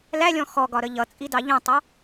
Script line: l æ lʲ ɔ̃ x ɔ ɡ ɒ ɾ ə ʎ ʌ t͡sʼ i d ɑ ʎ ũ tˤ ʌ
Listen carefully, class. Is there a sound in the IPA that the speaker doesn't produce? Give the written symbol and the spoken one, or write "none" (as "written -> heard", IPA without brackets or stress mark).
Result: none